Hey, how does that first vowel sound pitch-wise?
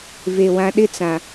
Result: low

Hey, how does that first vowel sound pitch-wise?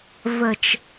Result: low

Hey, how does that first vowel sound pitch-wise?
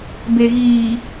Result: low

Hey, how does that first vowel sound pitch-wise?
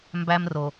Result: high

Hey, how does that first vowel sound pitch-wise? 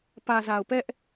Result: low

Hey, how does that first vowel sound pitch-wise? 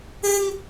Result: high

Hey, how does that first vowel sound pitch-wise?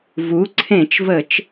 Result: rising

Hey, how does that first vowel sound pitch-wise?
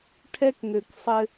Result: high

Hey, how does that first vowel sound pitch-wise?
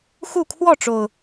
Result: falling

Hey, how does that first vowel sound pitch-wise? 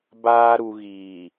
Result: high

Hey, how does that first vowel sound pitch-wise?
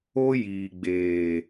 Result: high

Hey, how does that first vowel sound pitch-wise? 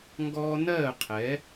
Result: high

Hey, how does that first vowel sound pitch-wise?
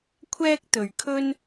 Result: high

